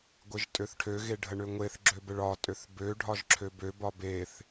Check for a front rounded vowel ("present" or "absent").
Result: present